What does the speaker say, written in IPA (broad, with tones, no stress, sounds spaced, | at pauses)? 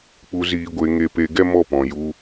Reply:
k͡p u˧ z iː˧ ɡʷ e˧ ŋ e˧ p e˧ ɡ ɛ˦ m ɔ˦˨ p ɔ̃˨ j u˧